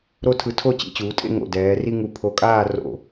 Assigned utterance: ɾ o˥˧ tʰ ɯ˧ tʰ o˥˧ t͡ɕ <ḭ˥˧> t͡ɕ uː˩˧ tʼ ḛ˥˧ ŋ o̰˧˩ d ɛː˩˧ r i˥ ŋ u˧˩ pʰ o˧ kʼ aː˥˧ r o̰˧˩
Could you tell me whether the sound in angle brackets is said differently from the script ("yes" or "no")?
no